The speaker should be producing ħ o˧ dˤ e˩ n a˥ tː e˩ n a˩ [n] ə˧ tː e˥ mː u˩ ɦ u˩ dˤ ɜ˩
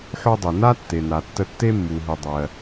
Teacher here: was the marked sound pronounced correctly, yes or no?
no